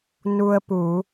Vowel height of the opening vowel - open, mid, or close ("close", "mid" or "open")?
close